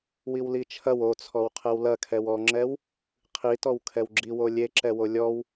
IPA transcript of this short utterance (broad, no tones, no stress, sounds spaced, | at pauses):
w i w l i t͡ʃʰ ɐ w o t͡sʰ ɔ w qʰ ɛ w l ɐ kʰ ɛ w ɔ ŋ͡ǁ ɛ w | qʰ i t ɔ w kʰ ɛ w ɡ͡ǁ i w o lʲ e ǁ ɛ w o lʲ ɔ w